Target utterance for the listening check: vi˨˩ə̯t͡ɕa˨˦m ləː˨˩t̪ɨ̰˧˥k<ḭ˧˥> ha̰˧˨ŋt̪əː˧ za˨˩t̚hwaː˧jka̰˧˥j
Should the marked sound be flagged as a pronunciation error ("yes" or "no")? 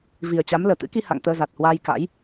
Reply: yes